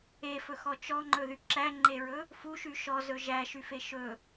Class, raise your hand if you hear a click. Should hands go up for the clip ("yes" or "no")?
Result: yes